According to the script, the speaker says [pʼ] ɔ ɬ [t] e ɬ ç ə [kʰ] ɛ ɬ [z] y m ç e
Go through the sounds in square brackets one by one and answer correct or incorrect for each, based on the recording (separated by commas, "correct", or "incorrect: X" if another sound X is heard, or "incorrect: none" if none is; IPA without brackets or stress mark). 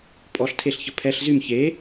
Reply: correct, incorrect: tʰ, incorrect: pʰ, correct